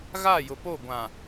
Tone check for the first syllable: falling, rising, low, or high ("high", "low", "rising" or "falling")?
falling